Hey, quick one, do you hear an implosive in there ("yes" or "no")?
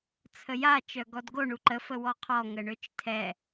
no